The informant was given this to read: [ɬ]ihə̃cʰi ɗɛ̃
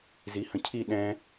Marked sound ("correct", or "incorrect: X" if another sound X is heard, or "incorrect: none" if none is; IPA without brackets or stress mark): incorrect: z